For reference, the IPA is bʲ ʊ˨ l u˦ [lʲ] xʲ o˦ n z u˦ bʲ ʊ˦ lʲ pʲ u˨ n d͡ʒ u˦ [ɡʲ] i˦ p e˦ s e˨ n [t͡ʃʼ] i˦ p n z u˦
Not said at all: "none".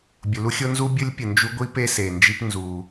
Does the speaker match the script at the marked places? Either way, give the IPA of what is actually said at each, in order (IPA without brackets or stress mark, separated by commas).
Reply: none, ɡʷ, d͡ʒ